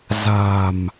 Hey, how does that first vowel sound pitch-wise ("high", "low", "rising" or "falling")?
low